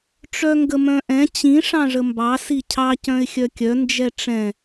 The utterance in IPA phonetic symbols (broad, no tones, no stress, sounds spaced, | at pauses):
ʈ͡ʂ œ ŋ ɡ ə m œ̃ ʔ ɛ̃ t͡ɕ ĩ ʂ ɑ̃ ʐ ə m b ɑ s i cʰ ɑ c œ̃ ɪ̯ xʲ œ kʲ œ n d͡ʒ ɛ ʈ͡ʂ ɛ̃